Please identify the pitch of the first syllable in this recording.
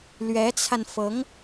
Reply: rising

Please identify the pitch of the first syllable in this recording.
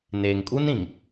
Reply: low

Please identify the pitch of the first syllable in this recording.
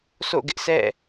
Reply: falling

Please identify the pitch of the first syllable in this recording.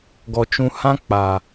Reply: low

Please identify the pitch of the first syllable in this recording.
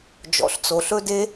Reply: low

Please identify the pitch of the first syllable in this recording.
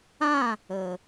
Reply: falling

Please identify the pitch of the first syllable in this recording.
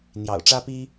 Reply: low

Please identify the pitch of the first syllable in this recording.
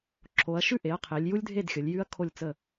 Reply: rising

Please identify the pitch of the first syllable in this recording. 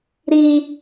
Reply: high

